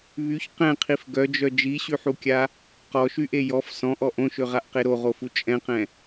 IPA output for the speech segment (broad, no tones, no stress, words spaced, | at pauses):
βyç qɛ̃qʰif ɡœd͡ʒœ d͡ʒiɕyħukʲa | qɔʃyʔe jɔf sɔ̃ʔɔ ʔõʃøʁaʔqe ɾoʁofu t͡ʃʼɛ̃qɛ̃